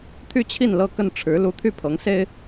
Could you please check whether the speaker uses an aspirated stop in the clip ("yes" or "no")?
yes